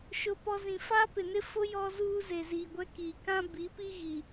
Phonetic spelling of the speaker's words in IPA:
ʃʊ˦pɔ˦ zĩ˨fa˦pɪ˨ nɪ˦fʊ˦ jɔ˦zuː˦ ze˨ziː˨ɡʷɛ˦ ki˨kã˦ bi˨˦pi˦ ɣi˨

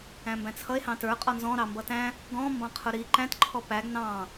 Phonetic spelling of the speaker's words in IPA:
æ̃mbæ̃t͡sʰʌe̯ hɑ̃tə˞ qʼɔnzɔ̃ ɾɑmbʌtæ̃ | ɡɔ̃ mbɑ̃qʰʊɾi ǃæ̃t ǃʰɔpæɡ nɑ̃

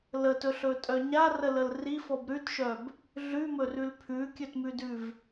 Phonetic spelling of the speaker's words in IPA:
lətɵɬɵtʼœ ɲarələl rifɔb ɾʉtʃœb | ɮʉmɵrʉl pʰʉkʲɵtmʉdʉv

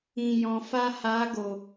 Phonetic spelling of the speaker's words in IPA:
ĩ˨jɔ̃˨ fa˧ha˨˦ ɡo˨

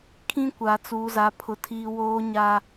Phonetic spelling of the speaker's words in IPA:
kʰĩ˦kʷa˨ t͡suː˦za˦pʰʊ˦tʰiː˦ woː˦ɲa˦

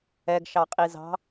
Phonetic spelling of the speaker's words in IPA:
ɛɡʃɑqʼizɑ̤

